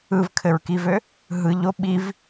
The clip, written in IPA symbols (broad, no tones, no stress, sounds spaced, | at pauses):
ɯ v kʰ ɘ ɹ k i v ø | ɦ ɯ ʎ o ɓ i v